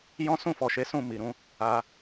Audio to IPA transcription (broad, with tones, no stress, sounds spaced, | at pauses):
j ɔ̃˦ s ũ˦˨ f ɔ˨ ʃ e˨˦ s ũ˦˨ m i˨ ɾ ũ˨˦ | a˧